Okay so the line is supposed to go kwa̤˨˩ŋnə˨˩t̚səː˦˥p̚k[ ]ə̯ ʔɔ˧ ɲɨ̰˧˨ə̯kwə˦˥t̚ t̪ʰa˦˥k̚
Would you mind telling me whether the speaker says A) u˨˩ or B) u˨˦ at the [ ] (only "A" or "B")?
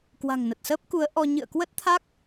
B